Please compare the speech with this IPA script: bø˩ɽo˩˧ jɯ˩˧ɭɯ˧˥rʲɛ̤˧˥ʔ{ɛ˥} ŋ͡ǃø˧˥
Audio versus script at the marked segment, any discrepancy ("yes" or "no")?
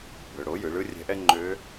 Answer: no